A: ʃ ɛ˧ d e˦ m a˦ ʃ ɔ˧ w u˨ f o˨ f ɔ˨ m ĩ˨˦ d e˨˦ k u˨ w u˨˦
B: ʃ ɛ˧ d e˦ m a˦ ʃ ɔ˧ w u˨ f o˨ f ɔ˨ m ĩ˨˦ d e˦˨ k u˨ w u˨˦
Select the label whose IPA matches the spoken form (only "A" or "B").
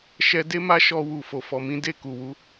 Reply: B